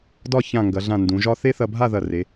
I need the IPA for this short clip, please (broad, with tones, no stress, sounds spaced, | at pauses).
d ɒ˥˧ ç ã˧˩ ŋ ɡ ɐ˩˧ ɮ ã˧˩ n d ũ˩˧ ʒ ɒ˥ θ e˥ θ ɐ˧ bʱ a˥˧ ð ɐ˧˩ r e˩˧